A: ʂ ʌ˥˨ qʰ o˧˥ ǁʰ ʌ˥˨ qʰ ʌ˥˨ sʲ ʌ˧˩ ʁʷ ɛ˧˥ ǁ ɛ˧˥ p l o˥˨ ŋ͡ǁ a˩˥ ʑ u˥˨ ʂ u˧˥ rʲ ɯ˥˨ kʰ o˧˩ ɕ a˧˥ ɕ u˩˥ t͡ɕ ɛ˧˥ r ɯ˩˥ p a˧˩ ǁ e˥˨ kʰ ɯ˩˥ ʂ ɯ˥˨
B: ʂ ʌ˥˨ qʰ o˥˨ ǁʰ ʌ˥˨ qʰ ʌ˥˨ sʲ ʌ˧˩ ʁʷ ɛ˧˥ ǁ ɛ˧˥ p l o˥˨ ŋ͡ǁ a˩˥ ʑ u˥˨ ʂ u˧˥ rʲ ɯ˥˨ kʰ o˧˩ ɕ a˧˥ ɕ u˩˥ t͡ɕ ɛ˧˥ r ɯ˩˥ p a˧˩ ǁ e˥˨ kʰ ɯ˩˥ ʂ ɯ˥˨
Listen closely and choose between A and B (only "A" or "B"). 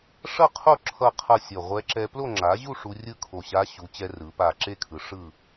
B